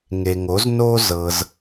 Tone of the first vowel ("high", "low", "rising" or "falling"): low